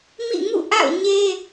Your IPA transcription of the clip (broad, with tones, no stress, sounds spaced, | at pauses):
m ḭ˦˨ ŋ ṵ˦˨ ʔ a̰˦˨ ʊ̯ ɲ e˦